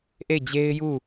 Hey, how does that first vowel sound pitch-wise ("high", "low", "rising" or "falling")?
falling